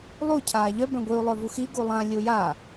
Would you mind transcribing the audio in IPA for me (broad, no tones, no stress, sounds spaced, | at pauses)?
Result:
lˠ u cʰ aː ʎ œ b œ̃ ɡʷ i u̯ lˠ œ v u x i ɡ u lˠ ã lʲ u j a